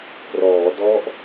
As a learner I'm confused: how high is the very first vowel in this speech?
mid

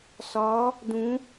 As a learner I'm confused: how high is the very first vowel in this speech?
low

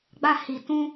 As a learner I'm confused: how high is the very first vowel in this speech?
low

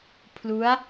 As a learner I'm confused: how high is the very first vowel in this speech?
high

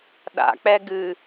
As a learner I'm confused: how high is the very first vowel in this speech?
low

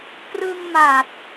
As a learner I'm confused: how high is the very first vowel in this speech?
high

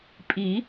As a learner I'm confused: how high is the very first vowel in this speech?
high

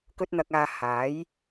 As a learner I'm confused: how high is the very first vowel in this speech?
mid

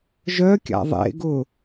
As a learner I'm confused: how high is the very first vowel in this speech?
mid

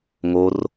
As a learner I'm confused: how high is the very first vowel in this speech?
mid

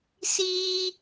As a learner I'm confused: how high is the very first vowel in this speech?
high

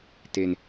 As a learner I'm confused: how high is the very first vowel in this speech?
mid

